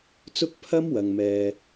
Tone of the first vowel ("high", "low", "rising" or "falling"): high